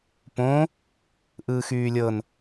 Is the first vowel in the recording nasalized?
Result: yes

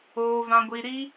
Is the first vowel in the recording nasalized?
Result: no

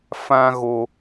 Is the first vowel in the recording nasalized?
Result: yes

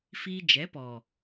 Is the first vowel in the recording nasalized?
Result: no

